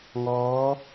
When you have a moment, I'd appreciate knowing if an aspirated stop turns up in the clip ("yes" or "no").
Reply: no